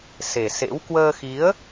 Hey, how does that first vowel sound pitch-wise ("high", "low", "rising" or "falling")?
low